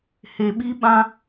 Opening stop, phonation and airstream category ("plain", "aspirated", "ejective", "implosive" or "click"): implosive